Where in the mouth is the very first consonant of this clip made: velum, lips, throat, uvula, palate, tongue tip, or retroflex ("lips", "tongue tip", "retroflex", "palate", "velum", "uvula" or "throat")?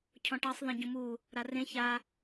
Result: palate